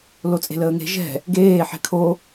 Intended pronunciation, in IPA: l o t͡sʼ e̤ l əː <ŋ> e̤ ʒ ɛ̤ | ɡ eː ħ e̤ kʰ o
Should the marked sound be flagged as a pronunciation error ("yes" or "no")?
no